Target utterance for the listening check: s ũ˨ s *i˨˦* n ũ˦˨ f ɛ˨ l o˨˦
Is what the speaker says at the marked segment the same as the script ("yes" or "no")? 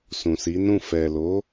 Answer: yes